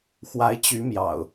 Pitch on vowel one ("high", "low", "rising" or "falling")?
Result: rising